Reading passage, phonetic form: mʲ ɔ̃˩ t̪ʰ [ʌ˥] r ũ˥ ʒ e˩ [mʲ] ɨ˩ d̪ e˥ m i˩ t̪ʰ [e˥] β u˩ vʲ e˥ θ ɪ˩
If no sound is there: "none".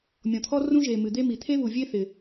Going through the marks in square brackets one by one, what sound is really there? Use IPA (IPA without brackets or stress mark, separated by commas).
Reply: ɔ˥, m, e˥